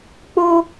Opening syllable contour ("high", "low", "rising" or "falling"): high